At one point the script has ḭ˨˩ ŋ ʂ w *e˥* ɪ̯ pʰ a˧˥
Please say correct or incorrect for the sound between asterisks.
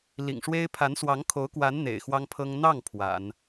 correct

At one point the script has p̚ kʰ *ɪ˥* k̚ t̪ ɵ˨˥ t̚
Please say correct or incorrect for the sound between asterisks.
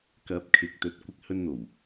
incorrect: ɪ˨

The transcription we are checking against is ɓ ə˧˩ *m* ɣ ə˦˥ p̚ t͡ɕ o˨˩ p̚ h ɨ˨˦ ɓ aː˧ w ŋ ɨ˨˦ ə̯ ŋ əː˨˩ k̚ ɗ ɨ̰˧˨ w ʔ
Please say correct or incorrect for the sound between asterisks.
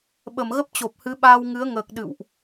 correct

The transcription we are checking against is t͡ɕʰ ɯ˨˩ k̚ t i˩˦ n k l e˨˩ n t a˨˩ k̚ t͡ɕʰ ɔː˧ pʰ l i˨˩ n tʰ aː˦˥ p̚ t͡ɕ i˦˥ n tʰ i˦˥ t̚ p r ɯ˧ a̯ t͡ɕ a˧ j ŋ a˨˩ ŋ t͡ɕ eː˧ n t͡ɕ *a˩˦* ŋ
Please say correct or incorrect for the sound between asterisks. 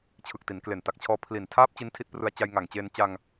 incorrect: a˧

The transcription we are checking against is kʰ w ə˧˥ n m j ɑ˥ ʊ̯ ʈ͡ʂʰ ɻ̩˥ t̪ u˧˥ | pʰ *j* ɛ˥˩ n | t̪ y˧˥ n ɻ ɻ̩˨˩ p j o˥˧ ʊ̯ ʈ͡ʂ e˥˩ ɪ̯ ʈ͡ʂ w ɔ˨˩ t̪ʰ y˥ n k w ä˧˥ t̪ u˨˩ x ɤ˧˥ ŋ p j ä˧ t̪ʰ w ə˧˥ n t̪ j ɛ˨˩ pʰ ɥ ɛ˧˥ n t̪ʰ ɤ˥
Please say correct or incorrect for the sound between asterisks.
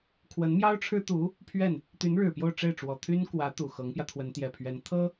incorrect: ɥ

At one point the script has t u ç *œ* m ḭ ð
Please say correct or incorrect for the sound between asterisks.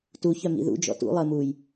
correct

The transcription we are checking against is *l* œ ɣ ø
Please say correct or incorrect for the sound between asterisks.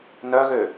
incorrect: n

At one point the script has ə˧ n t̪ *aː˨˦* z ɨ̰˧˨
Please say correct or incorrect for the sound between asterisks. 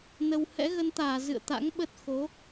incorrect: aː˧˩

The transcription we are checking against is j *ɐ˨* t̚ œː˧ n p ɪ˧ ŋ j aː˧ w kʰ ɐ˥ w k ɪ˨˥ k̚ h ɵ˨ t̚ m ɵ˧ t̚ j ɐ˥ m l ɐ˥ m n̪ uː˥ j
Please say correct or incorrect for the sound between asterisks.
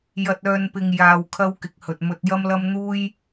incorrect: ɐ˧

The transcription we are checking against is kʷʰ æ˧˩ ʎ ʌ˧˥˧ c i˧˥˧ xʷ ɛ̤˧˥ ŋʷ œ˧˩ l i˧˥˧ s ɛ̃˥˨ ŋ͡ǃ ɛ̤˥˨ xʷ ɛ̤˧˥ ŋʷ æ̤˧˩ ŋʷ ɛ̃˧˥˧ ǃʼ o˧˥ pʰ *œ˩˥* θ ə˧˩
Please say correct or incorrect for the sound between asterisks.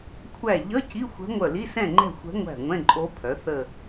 correct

